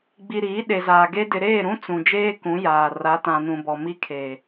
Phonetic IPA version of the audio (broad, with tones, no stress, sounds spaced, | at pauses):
ɡ͡b i˨ ɾ iː˨˦ ɗ e˨ z aː˨ ɡ e˦ d ɪ˨ ɾ eː˦˨ ɾ ũ˦ t͡s ũ˨ d͡ʒ eː˦ k ũ˨˦ j aː˨ r a˨˦ t ã˨ n ũ˨ b ɔ˨ m i˦ kʰ eː˨